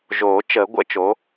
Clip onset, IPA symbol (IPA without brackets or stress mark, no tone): ʒ